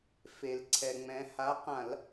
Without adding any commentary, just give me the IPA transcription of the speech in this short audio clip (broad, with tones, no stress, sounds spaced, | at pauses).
f e˩ l ǀʰ ɛ˩ ŋ͡m ɛ̃˩˧ h a˨˥ q ã˧˩˧ l